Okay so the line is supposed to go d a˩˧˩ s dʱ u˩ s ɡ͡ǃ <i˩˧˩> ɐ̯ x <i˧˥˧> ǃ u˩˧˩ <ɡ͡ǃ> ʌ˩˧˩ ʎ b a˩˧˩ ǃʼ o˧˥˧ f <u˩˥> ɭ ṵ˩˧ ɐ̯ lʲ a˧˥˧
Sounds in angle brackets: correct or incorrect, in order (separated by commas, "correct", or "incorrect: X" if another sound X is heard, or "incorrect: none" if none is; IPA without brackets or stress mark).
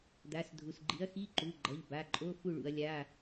incorrect: i˩˥, correct, correct, incorrect: u˥˨